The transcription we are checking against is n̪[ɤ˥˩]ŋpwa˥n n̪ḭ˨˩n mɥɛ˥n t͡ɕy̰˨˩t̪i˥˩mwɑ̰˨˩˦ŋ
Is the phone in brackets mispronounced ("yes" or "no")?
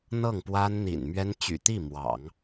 no